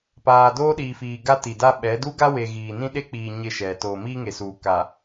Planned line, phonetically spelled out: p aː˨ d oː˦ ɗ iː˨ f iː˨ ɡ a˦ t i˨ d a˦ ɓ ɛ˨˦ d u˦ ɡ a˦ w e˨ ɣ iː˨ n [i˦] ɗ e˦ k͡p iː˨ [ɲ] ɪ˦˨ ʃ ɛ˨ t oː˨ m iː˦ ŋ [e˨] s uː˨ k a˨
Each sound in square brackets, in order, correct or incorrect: incorrect: ĩ˦, correct, correct

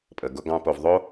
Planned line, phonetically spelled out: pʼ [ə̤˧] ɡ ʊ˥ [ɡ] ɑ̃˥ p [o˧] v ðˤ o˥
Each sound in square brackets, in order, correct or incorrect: incorrect: ə˧, correct, correct

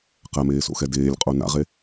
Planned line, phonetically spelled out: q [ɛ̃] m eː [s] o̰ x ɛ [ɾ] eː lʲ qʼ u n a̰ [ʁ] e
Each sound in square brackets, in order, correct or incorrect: incorrect: ɛ, correct, incorrect: d, correct

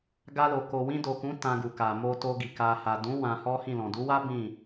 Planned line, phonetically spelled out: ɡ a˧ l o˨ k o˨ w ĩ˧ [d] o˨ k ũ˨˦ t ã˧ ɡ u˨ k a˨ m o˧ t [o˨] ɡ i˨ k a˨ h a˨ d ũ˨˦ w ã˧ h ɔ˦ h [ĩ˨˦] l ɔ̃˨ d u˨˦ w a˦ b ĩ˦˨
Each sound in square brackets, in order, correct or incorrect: correct, incorrect: o˧, incorrect: ĩ˦˨

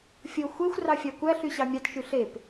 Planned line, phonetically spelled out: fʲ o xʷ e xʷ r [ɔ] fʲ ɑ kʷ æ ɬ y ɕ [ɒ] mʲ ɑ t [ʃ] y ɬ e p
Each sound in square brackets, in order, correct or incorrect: incorrect: ɑ, incorrect: ɑ, correct

